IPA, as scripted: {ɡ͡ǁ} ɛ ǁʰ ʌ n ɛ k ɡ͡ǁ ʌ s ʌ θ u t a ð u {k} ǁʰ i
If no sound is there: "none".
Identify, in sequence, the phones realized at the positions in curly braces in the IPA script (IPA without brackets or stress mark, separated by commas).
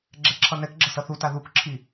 ɡ͡ǁ, k